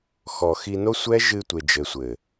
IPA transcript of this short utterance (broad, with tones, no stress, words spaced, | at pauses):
xɔ˨xi˧no˦ sʷɛ˦ ʒɨ˧tʷe˨d͡ʒɘ˨sʷɘ˨